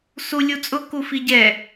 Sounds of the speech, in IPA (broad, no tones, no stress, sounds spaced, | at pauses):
s u lʲ u t͡sʼ ʊ k u f i ɟ ɛ